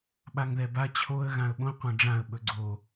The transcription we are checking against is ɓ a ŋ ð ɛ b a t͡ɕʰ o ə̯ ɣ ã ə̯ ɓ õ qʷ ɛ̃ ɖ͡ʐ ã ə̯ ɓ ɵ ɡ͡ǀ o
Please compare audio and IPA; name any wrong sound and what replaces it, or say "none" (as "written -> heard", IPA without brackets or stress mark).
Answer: none